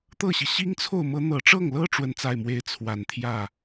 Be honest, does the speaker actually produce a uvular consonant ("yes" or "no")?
no